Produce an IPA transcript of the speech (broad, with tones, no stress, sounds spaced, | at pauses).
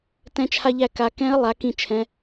t ɛ̃˧ t͡ʃʰ a˧ ʎ æ˧ k a˩˧ k ɛ̃˧˥ ə̯ lˠ a˩˧ k ĩ˧˩ t͡ʃʰ ɛ̃˩˧